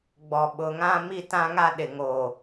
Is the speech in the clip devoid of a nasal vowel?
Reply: no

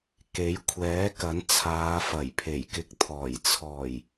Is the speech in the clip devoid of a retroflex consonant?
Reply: yes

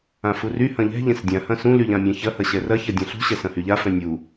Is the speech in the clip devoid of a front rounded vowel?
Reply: no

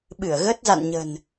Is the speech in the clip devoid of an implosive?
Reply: no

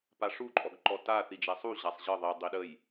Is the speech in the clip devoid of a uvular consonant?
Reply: yes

